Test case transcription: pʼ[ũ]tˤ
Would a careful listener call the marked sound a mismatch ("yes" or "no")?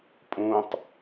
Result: no